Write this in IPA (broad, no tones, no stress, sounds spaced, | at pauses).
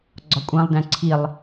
ɡ͡ǀ ɒ kʷʼ æ̃ lˠ d æ̃ ǀʰ i lˠ